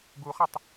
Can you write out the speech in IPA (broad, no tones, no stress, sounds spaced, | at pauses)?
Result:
ɡ u χ ə tˤ